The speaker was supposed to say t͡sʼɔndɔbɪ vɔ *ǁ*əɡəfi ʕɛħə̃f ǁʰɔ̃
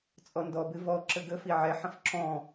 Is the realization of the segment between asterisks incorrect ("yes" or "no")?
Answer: no